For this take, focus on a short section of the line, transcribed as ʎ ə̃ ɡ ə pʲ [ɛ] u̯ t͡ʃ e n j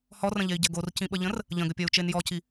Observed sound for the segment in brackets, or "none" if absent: ɜ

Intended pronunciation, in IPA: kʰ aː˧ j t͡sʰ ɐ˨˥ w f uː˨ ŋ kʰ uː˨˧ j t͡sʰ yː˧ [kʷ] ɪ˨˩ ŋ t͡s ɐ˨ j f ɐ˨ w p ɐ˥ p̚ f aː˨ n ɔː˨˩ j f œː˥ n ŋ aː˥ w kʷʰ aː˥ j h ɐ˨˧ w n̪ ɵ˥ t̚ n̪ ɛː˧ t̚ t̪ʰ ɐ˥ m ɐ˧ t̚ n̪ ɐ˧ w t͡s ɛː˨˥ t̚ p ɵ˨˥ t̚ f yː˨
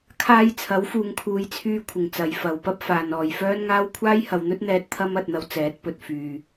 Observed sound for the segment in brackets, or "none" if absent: kʷʰ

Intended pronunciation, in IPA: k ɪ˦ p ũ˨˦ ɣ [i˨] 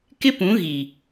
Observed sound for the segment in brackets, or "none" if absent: i˨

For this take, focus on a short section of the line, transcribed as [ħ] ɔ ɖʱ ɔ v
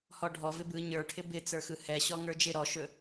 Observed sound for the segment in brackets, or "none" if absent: h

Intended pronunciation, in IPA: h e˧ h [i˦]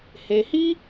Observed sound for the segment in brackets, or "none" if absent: i˦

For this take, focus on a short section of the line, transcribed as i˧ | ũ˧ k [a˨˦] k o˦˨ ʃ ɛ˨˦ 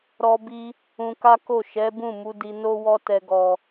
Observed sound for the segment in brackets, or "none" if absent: a˦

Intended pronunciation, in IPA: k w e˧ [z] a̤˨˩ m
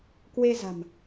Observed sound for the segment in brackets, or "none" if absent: z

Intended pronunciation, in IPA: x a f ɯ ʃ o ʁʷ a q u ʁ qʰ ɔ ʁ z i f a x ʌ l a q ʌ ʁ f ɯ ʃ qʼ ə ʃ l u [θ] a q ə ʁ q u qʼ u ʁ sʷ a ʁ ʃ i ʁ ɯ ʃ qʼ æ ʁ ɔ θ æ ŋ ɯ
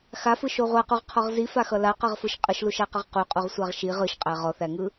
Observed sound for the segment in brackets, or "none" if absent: ʃ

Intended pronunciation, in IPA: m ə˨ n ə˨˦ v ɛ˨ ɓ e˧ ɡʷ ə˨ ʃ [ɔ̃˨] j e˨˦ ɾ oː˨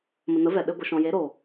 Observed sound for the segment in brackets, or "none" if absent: ɔ̃˨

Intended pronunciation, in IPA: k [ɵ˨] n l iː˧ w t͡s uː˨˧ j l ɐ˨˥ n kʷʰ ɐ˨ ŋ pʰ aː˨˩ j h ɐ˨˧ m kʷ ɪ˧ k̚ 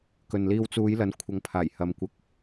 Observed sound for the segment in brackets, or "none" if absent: ɵ˨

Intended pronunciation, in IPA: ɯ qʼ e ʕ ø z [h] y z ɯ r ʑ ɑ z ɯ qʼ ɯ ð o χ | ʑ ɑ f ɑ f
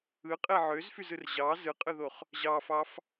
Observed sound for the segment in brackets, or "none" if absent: f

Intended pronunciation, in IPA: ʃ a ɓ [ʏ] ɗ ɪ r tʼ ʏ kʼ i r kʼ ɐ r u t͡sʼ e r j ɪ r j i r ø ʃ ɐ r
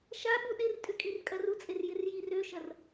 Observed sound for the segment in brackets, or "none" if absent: u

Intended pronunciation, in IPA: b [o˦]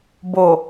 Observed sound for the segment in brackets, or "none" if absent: o˨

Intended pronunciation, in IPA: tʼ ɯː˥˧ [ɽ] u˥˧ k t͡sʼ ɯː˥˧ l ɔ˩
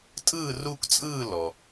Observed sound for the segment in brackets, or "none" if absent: r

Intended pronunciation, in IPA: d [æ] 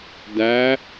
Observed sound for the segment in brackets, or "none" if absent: æ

